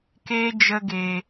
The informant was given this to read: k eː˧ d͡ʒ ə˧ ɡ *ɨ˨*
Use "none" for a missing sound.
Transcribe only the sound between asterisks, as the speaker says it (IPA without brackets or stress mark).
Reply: e˨